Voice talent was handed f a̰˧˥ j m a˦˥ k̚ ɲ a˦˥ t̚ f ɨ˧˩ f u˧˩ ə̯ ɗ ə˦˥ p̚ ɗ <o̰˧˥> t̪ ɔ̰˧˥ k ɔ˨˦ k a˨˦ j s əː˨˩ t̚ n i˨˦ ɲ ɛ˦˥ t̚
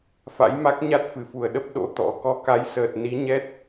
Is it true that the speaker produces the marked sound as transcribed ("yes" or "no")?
yes